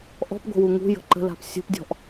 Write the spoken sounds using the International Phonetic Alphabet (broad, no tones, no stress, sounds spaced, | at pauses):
ʔ ɔ̤ p ɡʷ ə̤ w u ŋ ṳ j ə̤ ǃ ə̤ l a̤ p sʲ ṳ p dʲ ɔ̤ ʔ